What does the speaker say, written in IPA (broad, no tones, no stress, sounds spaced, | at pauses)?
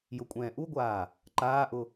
j ʊ kʷʼ ɛ̃ː ʔ u ɡʷ aː | ǃ aː ʔ ʊ